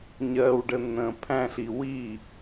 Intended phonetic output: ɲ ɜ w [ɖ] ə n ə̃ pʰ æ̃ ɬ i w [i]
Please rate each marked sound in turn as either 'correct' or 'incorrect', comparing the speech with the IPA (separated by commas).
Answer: correct, correct